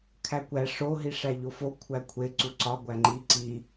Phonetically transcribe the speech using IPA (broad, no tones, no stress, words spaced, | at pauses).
kʰækʷæ ʂo ɦiʂæʎofo kʷʰækʷʰe ǀuǀɒ ɡʷæŋ͡ǃi ǀi